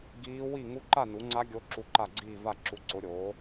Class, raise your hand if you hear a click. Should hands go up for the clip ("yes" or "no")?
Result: yes